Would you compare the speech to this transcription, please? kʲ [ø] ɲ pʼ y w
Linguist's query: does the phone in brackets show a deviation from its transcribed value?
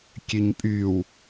no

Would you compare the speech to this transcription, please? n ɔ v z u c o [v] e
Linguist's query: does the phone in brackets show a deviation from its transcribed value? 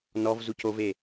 no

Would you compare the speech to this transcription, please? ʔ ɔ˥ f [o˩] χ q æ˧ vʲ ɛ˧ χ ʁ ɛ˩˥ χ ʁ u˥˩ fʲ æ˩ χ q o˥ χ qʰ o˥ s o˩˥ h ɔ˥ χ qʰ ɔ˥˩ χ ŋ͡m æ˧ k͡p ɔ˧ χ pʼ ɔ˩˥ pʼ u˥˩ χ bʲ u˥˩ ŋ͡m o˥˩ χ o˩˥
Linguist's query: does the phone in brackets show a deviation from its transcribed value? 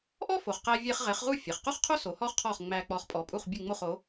no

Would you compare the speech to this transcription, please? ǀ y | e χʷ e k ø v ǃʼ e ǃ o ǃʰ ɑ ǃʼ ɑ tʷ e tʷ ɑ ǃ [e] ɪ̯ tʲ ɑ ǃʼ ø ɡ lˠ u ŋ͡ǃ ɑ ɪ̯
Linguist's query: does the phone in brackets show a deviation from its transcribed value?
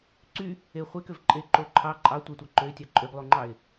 yes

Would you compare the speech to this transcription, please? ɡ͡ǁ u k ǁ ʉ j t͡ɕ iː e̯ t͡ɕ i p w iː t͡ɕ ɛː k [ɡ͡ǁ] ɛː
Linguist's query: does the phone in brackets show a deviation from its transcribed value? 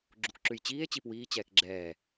no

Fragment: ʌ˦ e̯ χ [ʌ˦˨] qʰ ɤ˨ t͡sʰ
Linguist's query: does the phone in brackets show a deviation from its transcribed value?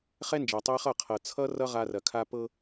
no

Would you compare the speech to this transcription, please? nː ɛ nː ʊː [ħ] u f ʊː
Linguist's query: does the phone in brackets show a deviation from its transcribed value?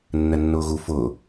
yes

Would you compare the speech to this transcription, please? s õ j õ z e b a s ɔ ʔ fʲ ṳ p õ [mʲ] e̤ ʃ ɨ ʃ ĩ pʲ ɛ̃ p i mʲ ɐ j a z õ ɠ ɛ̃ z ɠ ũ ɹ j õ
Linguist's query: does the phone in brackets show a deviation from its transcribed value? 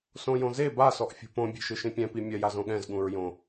yes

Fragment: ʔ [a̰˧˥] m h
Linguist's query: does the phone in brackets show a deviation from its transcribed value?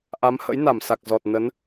yes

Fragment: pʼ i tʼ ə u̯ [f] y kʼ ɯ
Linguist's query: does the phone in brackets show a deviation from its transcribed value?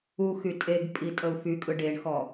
no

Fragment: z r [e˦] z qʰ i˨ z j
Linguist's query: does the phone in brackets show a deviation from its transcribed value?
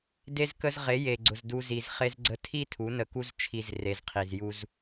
yes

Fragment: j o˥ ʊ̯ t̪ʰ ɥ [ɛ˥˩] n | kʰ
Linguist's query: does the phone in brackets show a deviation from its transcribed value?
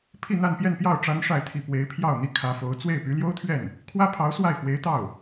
no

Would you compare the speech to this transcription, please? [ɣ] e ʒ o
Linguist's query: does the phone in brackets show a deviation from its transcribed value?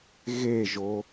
no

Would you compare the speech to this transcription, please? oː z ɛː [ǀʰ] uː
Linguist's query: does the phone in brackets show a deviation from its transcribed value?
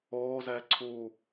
no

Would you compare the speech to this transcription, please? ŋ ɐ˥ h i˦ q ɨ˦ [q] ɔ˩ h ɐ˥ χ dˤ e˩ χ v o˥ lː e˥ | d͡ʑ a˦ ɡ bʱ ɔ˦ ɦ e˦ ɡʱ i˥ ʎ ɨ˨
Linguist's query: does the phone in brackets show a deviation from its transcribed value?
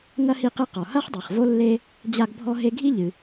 no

